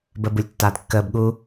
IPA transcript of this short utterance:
bəːbulʲtːaːdkːəːb ɠu

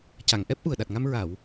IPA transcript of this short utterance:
ca˨˩˨ŋʔɛ˦˥p̚ʔu˨˩ə̯ ɗa˨˩t̚ŋa˧m ɹa˨˩˨w

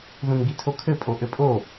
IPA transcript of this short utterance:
ðũnɡitʰokʰɘ pʼoʔɘpʼo

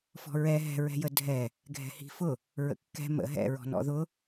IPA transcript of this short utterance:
fɔ̤ɹɛ ɦɛ̤ɹɛ̤jə dʱɛ | ɡʱɛ̤hi̤fʊ | ɹə̰kːɛ̤ mə̰ ɦɛ̰ɹɔ̤nɔ̰ ðʊ

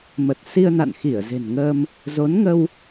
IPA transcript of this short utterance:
mə˨˩t̚ si˧ə̯na̰˧˨nxi˧˩ə̯ ze̤˨˩nŋəː˧m | zo˨˦nŋə˧w

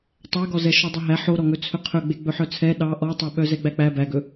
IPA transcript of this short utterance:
tˤæɡɔzɛ ʃɔdˤɵɦæ ħo ɾɔŋɵt͡sʰɵqʰɵ ɡ͡beɡ͡bɵħœt͡sʰɛ ɗɑ ʔɔtˤeɓœ zɛɡ͡bæk͡pæ bæɡɵ

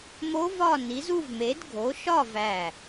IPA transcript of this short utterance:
mo˦˥ vɒ˥˧ ni˨˦zu˥˧vme˨˦dɡʱo˨˦ ʃɒ˥˧væ˧˩

